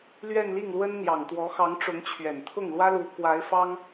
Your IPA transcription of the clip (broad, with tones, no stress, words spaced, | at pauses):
lɥɛ˥˧nli˥˩ŋlwə˥nn̪jɑ˨˩ŋ t̪wɔ˧˥xɑ˧˥ŋʈ͡ʂʊ˧˥ŋt͡ɕʰɥɛ˨˩n t̪ʰʊ˥˩ŋlwä˥lu˧˥ kwa˧˥ɪ̯fɑ˥ŋ